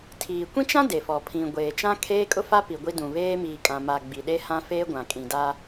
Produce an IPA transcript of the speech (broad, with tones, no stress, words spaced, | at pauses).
tʰiː˨kʷĩ˦t͡ʃã˦ de˨fɔ˨ pʰĩ˨ ɡʷeː˨t͡ʃã˦kʰeː˦ kʼʊ˦fa˦ pi˨ɡʷi˦dũ˨ βeː˦miː˨ kʼã˨ma˨ ɡ͡bi˨ɗe˦hã˦ fe˦ɡʷã˨ kʼĩ˨da˦